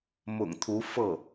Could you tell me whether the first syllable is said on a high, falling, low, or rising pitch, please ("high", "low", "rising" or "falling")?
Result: low